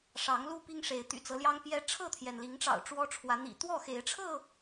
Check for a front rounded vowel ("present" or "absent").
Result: present